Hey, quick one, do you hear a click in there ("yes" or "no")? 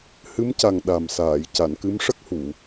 no